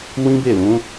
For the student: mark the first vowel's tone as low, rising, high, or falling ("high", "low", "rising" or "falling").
high